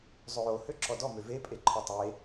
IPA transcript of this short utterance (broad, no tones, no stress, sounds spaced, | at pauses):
zˤ ø j o h ø ǁ ɔ d ɔ m ø v e pʼ e ǃʰ ʌ tˤ e